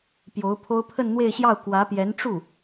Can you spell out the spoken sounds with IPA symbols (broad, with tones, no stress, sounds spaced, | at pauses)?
p j o˧˥ ʊ̯ pʰ o˥ ʊ̯ pʰ ə˥˧ n n̪ w e˥˧ ɪ̯ ɕ j ɑ˥˩ ʊ̯ k w ä˧˥ p j ɛ˧˥ n ʈ͡ʂ u˥˩